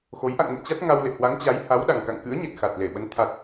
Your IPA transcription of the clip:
x o˨˦ j ʔ a̰˧˨ ŋ n ə̰˧˨ m t͡ɕ a˦˥ t̚ ŋ a˧ w l ḛ˧˨ h w a˨˦ ŋ t͡ɕ a˨˦ j h a˨˦ w ɗ a˨˩ ŋ k a̰˧˨ ŋ k ɨ̰˧˥ ə̯ ɲ e˨˩ t̚ x a˨˩ t̚ l e˧˩ ɓ ə˨˦ n t̪ʰ a˨˩ t̚

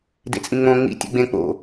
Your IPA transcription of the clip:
d ḛ t͡sʼ ĩ ŋ͡m õ ŋ͡m ḭ tʲ ḛ ɡ͡b ẽ k͡p o̰

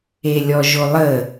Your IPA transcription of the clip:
e lʲ ɔ ʒ o lˠ ə

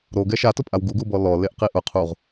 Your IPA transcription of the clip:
ɾ o ɡ ɛ ʃ a t ʊ pʼ a w ɡ u ɡ u b ɔ l ɔ l e ʔ q i ʔ ʊ qʰ u ʁ

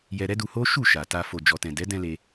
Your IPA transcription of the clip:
j ɛ˧ ɾ ɛ˦ d u˧ h o˦ ʃ u˦˨ ʃ a˨ t a˨ f o˨ d͡ʒ ɔ˨ t ɛ̃˨ d ɛ˨˦ d ɛ̃˧ l e˧

